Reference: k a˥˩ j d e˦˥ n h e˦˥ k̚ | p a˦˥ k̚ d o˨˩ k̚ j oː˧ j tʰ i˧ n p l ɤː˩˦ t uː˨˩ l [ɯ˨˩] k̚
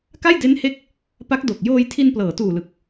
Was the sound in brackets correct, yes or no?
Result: yes